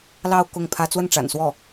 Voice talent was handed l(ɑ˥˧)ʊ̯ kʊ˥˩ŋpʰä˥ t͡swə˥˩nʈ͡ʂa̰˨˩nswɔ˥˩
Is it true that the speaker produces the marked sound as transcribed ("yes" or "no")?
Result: yes